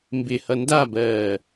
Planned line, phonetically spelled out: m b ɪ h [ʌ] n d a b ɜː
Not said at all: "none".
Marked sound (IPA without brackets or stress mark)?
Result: ʌ